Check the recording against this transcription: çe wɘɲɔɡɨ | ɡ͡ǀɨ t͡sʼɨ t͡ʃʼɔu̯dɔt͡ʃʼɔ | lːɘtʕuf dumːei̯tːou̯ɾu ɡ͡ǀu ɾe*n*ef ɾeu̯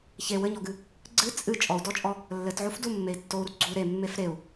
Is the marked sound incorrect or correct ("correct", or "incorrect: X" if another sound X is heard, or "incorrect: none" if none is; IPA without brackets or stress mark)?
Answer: incorrect: mː